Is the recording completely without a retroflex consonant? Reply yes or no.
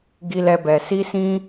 yes